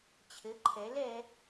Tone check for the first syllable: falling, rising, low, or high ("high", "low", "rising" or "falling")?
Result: rising